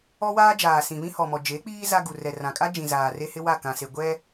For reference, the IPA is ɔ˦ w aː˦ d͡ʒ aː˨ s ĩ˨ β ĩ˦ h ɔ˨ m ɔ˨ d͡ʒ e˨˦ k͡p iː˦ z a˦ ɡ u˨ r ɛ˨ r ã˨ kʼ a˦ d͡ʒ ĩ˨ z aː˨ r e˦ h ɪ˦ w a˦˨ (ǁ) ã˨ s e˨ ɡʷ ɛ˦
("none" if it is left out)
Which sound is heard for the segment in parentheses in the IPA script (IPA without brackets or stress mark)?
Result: k